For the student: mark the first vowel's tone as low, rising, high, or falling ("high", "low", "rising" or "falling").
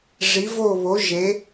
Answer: rising